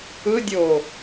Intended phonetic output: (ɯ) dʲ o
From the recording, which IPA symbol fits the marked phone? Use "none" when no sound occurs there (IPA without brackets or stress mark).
ɯ